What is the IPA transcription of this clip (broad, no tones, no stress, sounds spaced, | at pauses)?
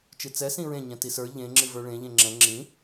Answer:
t͡ʃ ɨ t͡s ɛ s ĩ ɹ ẽ ɲ ɛ̃ t i s ə˞ ʎ ẽ ŋ͡ǁ ɨ v ə˞ ɭ ẽ ʎ ẽ ŋ͡ǁ ɛ̃ ŋ͡ǁ ĩ